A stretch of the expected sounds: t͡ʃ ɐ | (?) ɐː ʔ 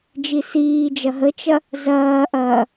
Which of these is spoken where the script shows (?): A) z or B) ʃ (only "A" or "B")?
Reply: A